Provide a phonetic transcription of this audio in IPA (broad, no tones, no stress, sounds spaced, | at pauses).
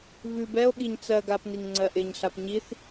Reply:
v ʉ b ɛ o̯ ɠ i ɲ t͡s ɜ ɡ a p n i ŋ ŋ͡ǀ ɜ ʔ ɪ ɲ ɬ a p ɲ i θ